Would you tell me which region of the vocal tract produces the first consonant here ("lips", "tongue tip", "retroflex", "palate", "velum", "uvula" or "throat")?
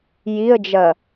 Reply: palate